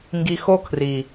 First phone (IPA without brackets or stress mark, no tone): ŋ